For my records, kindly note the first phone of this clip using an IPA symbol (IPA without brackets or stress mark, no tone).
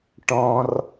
ʈ